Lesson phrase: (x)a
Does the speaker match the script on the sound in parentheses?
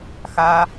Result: yes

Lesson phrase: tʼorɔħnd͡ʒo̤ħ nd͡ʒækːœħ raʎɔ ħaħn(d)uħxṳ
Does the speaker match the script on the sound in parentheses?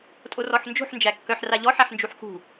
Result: no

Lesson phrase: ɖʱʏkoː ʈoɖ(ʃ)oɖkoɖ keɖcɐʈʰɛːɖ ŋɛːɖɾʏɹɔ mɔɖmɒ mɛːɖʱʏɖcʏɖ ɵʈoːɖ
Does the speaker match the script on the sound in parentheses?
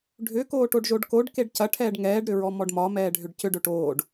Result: no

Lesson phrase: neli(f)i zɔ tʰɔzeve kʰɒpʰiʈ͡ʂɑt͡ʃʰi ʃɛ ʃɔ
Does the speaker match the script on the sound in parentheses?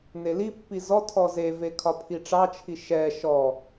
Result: no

